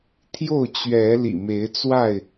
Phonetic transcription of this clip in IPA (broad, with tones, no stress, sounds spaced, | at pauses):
t̪ʰ j o˥˨ ʊ̯ t͡ɕ ɥ ɛ˨˦ l ḭ˨˩ m e˨˦ ɪ̯ t͡s w a˥˨ ɪ̯